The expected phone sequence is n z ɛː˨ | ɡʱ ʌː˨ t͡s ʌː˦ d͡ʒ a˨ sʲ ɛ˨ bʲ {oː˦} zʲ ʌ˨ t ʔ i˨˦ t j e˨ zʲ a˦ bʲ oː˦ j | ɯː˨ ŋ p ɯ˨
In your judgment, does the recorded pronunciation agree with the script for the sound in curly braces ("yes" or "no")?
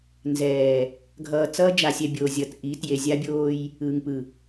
no